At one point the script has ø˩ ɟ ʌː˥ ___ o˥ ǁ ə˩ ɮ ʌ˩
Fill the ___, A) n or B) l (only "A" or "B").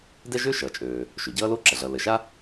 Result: B